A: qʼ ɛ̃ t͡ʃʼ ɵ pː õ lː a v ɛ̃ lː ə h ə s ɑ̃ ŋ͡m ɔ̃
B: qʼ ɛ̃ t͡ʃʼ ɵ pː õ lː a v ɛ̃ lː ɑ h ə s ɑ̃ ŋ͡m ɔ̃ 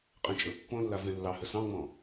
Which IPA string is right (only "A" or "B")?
B